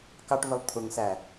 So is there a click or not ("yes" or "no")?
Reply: no